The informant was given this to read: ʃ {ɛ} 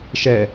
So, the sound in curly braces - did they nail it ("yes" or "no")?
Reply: yes